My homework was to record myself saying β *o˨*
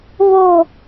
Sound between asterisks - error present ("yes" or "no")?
no